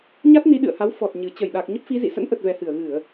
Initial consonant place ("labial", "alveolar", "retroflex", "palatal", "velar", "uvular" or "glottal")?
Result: palatal